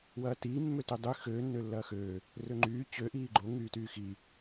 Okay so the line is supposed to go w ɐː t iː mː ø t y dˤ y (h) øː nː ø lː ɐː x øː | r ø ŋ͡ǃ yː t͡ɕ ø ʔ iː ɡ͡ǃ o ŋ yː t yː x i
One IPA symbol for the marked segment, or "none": x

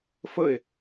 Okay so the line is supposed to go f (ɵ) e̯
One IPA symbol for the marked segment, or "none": ə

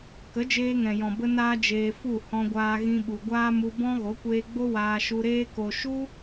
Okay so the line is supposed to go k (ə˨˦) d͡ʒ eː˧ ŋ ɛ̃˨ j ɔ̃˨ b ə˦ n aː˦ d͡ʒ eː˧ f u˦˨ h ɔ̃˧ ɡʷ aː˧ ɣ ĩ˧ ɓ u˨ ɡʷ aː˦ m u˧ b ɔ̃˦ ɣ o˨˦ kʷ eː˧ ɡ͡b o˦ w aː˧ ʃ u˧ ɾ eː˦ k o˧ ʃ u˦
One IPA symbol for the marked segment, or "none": ə˨˦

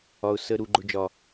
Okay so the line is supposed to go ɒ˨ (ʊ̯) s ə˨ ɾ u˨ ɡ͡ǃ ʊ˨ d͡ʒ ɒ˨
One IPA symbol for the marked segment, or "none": ʊ̯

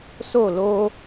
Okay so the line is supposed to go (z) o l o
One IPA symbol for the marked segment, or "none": s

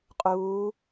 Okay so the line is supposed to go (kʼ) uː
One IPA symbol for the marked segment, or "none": qʼ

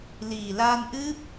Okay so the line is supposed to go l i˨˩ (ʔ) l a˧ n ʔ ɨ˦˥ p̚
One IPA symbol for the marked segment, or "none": none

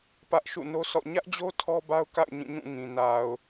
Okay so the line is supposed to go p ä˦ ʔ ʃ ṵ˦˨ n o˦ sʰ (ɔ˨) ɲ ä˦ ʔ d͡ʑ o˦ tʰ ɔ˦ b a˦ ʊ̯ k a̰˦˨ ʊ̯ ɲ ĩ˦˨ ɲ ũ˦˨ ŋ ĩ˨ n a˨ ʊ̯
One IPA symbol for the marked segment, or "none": ɔ̰˦˨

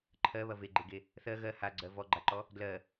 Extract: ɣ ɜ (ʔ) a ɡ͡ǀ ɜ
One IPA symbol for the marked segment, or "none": h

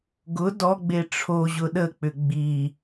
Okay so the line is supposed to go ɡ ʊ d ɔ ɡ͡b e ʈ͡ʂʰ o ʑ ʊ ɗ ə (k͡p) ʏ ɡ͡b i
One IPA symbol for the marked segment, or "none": k͡p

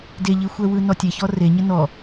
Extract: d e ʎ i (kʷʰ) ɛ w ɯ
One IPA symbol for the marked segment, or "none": xʷ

